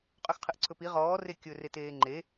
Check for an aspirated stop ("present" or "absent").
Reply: present